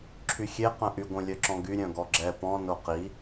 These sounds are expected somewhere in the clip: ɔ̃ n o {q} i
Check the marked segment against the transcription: correct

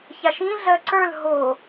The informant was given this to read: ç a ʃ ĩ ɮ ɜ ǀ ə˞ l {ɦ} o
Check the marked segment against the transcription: correct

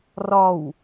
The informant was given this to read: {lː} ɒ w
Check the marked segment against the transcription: incorrect: r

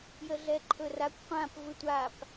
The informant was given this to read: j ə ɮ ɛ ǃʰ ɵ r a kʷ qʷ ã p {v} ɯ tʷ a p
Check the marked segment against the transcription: correct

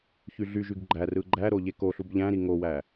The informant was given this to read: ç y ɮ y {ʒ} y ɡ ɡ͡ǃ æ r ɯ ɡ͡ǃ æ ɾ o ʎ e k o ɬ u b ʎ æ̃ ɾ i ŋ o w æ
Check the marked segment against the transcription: correct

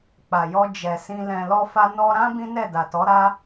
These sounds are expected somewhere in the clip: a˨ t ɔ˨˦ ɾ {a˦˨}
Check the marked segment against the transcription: incorrect: a˦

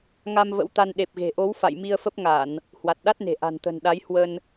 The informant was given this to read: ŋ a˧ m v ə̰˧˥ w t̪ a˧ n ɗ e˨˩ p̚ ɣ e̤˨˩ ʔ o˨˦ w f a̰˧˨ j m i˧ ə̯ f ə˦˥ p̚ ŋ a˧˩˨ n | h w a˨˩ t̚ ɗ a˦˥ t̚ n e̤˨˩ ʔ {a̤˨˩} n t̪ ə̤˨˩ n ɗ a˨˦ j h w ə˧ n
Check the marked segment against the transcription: correct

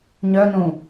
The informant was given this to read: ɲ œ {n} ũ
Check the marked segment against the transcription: correct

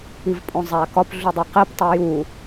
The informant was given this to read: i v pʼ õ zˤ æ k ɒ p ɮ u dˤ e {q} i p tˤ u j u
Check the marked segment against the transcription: correct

